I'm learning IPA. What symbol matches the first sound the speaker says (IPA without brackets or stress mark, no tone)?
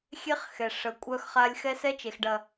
xʲ